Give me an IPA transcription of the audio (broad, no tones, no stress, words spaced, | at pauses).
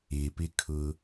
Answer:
ɪpɪkʰʊ